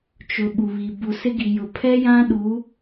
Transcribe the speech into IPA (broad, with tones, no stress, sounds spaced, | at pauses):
t͡ʃ ʊ˨˦ ɓ u˨ β i˨ b u˨ s ɪ˦ ɡ i˨ j ʊ˨ pʰ ɛ˦ j ã˦ ɗ u˨˦